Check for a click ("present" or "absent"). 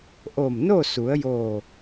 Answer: absent